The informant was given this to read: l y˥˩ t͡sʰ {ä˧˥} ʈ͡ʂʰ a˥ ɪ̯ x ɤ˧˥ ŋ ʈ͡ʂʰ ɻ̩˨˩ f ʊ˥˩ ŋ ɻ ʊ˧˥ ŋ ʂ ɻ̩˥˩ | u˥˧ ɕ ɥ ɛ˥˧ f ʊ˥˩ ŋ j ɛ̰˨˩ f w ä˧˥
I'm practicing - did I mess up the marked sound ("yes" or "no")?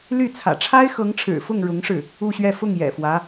yes